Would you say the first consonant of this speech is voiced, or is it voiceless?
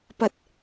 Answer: voiceless